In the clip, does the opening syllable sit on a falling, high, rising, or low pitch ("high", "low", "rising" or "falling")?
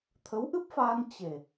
rising